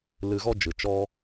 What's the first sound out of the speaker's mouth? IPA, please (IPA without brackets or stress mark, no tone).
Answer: l